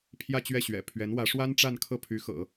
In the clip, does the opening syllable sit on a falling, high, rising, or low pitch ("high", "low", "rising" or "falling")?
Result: falling